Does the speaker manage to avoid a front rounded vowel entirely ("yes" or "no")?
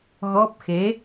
yes